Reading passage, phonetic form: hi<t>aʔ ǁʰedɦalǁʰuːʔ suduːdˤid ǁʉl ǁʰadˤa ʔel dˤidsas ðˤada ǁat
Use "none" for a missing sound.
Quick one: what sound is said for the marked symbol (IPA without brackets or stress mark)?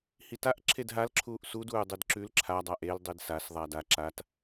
t